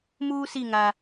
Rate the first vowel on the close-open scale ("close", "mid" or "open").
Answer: close